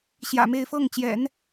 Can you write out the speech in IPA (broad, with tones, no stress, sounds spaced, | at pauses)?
ɕ j ä̰˨˩ m e˥˧ ɪ̯ f ɤ˥˩ ŋ t͡ɕ j ɛ̰˨˩˦ n